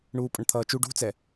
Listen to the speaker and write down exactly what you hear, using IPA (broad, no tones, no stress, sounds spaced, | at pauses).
ɳ uː pʼ ʌ ɳ t̪ʰ ʌː t͡ʃ u ɖ ṳ t͡s ɛ